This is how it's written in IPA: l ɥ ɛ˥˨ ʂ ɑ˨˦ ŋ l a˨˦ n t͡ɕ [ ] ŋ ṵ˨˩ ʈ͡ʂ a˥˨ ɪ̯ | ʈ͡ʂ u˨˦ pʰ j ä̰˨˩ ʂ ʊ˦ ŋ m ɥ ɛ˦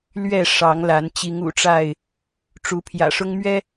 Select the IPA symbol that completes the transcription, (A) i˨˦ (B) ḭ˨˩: A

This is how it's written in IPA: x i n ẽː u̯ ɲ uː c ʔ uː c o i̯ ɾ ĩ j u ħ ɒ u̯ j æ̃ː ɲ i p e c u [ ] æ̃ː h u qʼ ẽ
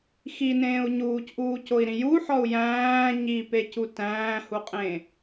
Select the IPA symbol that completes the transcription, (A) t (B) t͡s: A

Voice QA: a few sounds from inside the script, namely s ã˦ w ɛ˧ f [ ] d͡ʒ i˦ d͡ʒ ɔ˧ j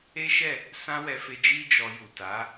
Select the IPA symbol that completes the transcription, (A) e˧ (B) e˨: A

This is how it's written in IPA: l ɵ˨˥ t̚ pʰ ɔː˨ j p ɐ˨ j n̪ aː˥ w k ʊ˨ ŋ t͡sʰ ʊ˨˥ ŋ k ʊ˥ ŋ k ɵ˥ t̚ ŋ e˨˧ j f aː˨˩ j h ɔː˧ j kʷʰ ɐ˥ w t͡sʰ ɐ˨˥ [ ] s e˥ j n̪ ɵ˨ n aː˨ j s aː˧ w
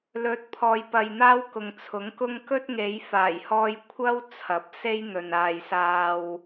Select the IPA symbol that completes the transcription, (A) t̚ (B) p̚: B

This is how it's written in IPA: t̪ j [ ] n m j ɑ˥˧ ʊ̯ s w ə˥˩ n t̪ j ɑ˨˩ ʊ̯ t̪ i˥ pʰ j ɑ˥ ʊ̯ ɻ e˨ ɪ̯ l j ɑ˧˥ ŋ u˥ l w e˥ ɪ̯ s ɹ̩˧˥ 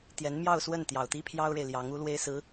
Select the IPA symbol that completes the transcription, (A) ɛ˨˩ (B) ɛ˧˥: B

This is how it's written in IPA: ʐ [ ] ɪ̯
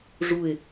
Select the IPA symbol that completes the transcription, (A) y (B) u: B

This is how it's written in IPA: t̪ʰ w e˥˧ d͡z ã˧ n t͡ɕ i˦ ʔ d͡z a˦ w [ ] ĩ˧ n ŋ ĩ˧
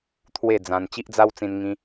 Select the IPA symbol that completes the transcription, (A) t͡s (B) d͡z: A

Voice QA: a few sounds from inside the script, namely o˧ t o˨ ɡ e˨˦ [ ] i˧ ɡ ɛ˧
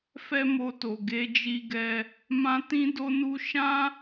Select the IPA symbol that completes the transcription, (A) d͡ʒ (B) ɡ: A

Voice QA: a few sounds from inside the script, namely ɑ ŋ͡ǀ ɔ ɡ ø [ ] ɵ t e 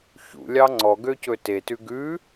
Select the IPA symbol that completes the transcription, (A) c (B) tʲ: A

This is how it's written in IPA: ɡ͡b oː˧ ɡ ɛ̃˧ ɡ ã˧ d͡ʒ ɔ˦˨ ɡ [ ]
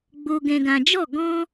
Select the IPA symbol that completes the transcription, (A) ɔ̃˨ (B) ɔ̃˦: B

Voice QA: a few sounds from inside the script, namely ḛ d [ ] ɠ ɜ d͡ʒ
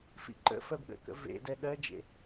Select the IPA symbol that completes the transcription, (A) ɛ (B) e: A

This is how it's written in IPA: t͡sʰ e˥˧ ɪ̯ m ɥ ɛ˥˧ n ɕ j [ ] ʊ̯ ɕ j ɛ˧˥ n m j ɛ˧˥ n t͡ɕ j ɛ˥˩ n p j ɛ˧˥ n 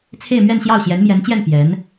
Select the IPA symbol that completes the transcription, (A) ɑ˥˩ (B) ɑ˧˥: A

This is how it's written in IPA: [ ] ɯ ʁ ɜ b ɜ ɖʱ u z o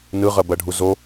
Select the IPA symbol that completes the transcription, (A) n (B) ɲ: A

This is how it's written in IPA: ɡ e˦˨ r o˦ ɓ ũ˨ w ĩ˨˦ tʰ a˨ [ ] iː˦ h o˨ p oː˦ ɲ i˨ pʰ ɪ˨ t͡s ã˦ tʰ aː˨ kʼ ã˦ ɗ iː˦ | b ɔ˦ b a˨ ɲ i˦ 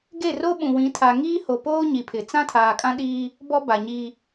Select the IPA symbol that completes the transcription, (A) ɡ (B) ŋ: B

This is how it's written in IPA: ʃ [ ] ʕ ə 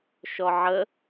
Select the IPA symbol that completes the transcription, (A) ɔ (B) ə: A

